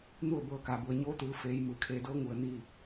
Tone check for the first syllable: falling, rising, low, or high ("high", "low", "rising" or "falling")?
falling